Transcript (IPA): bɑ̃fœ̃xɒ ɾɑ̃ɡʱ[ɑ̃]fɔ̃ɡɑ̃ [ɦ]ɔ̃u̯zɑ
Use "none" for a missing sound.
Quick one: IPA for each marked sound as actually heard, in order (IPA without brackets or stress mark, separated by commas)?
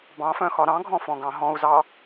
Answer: ɔ̃, ɦ